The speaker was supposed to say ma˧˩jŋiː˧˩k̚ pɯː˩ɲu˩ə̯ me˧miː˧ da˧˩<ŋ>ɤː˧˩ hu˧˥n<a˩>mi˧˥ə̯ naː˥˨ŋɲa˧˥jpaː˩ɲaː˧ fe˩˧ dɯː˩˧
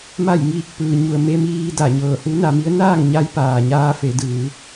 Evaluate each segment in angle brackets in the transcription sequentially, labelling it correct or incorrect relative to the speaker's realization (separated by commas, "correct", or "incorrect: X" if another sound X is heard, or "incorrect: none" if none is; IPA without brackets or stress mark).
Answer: incorrect: ɲ, incorrect: a˩˧